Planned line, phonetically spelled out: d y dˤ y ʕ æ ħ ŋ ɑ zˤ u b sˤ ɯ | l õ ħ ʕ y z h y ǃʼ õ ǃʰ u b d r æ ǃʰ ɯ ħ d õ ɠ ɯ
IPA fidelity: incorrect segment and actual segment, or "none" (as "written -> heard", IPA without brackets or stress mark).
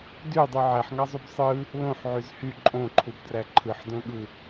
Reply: none